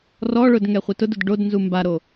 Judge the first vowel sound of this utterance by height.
mid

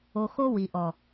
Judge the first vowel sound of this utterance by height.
mid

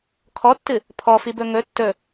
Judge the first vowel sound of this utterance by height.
mid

